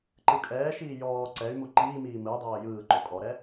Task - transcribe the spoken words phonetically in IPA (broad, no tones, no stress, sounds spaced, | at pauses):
ǃ ɯ kʼ ɛː ʃ iː j ɔː ǀ ɛ y̯ m u ǃ iː m iː m ɯ i̯ dˤ ɤː j ɯː ǃ o kʼ ɔ ɾ ɛ